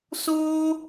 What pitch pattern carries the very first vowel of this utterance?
high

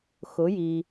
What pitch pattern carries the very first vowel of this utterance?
rising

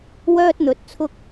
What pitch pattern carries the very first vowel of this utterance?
high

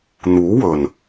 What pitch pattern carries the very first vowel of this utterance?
rising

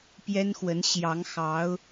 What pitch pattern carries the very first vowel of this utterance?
high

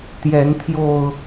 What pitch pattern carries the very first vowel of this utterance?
rising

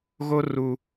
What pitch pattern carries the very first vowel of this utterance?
high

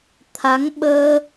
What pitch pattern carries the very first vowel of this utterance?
rising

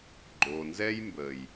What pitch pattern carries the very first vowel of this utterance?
low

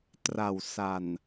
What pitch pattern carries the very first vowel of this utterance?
low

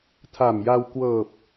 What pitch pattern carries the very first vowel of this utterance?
low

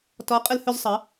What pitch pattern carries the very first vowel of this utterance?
rising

